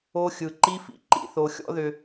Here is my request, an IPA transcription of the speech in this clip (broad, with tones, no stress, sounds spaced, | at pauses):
o˧ xʲ ɯ˨ ǃ i˦ f ḭ˨ ǃ ḭ˧ θ o˧ xʲ ɔ̰˦ ð ʏ˧